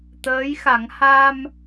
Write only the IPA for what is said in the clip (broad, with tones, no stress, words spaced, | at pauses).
t̪əː˧˥jxa˨˩˦ŋ ha˧m